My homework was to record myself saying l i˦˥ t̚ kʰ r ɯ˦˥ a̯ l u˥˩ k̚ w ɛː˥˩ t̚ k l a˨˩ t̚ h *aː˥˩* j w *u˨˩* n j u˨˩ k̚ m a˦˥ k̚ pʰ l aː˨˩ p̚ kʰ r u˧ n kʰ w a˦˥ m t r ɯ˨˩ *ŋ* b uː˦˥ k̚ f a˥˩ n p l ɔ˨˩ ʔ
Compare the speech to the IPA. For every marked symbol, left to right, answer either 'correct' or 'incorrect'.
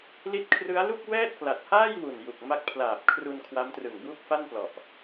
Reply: correct, correct, correct

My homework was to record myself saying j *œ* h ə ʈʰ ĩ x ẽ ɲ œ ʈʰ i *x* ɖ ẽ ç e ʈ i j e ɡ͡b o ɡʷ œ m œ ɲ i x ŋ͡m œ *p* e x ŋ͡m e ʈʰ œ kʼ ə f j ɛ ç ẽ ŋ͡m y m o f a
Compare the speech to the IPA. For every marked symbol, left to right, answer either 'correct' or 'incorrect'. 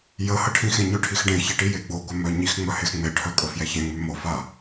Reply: incorrect: ə, correct, incorrect: h

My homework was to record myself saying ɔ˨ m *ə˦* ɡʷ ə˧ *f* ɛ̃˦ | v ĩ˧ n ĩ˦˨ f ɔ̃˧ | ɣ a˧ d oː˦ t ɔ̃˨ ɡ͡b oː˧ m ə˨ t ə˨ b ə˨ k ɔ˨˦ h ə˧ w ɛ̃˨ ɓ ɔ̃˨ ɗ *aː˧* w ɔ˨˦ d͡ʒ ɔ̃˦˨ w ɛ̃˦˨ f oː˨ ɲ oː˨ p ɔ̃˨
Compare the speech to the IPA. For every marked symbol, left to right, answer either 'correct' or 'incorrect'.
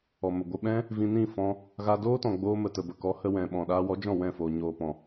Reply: incorrect: ə˨, incorrect: ɓ, correct

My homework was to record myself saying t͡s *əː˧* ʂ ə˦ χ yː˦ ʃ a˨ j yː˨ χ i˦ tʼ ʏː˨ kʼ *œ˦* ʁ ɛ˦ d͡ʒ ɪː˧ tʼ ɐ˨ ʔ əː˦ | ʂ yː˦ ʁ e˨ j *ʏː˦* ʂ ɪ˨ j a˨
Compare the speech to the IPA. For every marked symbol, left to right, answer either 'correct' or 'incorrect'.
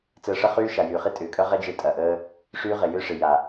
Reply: correct, correct, correct

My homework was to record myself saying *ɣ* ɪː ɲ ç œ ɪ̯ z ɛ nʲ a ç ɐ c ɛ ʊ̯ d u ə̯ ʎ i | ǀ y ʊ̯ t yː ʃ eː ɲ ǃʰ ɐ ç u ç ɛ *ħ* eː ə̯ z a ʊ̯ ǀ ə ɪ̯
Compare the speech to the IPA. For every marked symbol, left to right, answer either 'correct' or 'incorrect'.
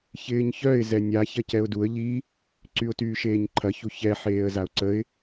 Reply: incorrect: ç, correct

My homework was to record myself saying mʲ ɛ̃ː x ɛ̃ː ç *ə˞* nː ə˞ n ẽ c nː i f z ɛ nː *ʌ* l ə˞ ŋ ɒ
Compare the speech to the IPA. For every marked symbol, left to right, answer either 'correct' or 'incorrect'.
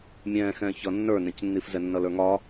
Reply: incorrect: ʌ, correct

